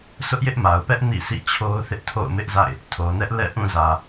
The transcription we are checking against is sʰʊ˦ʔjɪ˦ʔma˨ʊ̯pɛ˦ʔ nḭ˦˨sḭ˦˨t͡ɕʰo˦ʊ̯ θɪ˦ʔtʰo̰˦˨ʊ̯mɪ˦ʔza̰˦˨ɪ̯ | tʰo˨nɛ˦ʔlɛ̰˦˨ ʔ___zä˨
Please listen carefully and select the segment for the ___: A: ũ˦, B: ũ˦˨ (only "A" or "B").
B